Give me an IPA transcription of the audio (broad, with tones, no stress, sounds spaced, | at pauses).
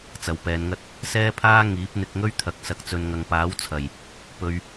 t͡s ɐ˨ w p ɛː˨˧ n ŋ ɐ˥ t̚ | s ɛː˥ pʰ aː˥ ŋ iː˨˥ p̚ n̪ ɪ˧ k̚ ŋ ɵ˥ ɥ t̪ʰ ɐ˨ k̚ s ɐ˨ k̚ t͡s ɵ˨ n ŋ ɐ˨ ŋ p aː˨˥ w t͡sʰ ɐ˨˩ j | p ɵ˨ ɥ